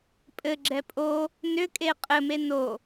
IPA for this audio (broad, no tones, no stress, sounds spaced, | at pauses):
pʼ ɘ ɡ͡ǁ ɛ pʼ o | n ʏ kʼ e qʼ ɘ m e n o